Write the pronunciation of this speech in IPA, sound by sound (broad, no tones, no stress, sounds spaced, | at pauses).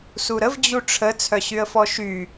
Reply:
s u ɾ ə v d͡ʑ u ʈ͡ʂʰ ə t͡sʰ œ ɕ y ə̯ f ɔ ʃ y